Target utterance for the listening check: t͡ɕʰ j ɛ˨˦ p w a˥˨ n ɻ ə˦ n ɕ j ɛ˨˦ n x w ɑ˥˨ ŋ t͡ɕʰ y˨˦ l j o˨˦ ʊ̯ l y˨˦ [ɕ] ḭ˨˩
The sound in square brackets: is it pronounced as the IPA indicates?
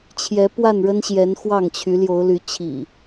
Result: no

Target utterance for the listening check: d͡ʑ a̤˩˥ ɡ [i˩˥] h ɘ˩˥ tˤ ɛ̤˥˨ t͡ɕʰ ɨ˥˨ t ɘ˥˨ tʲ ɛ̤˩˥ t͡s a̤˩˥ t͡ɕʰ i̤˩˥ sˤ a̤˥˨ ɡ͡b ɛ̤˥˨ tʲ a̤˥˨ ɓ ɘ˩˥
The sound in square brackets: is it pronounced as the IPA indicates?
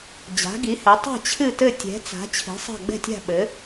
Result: yes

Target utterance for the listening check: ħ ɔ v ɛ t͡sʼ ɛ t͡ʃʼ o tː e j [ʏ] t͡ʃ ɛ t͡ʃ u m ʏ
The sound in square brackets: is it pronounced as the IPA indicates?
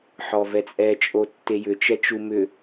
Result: yes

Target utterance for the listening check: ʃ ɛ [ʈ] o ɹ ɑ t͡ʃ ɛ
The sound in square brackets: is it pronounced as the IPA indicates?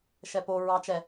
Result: no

